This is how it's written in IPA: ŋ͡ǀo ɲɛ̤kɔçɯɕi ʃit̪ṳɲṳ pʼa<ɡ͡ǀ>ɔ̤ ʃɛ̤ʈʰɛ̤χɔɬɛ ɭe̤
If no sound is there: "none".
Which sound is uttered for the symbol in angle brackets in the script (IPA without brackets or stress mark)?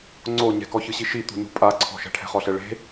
ǀʰ